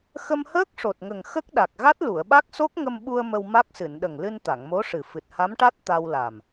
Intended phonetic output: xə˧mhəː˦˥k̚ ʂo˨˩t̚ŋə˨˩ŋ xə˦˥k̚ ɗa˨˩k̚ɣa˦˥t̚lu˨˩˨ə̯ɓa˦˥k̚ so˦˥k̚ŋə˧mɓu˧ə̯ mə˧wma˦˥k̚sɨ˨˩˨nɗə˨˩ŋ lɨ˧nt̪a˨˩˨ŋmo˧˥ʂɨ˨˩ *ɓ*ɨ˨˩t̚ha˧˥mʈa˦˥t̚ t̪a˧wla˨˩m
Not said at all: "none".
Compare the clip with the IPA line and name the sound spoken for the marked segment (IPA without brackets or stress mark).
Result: f